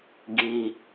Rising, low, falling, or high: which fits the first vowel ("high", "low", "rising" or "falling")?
low